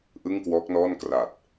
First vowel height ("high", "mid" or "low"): high